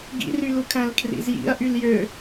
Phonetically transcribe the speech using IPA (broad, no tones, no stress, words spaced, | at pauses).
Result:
ɡḭrylukʰæ̃l kʰrḭzjḭɐ̯ ʔyljø